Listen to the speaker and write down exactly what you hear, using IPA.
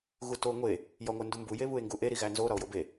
ɣ u t o ŋʷ e | j ɒ ŋʷ æ n d u m b u j e β u e̯ ŋ ɡ u ʔ e ɾ i ɣ æ n z o ɾ ɒ o̯ j o b e

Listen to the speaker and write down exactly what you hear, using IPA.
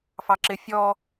f ɑ ǁ ɪ fʲ ɔ

